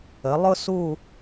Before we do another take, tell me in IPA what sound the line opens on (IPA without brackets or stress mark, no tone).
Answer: ə